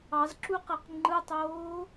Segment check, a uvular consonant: present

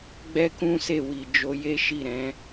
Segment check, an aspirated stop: absent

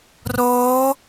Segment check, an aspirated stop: absent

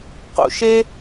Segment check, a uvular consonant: present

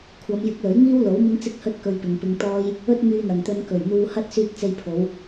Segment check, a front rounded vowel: present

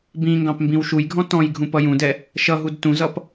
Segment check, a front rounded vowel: absent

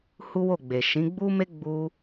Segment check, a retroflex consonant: absent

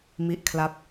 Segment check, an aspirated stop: present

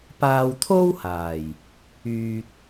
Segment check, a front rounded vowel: present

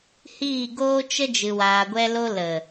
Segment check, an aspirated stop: absent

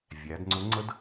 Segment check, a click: present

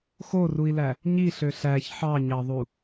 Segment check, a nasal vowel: absent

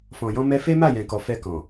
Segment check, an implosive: absent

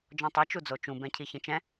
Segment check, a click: absent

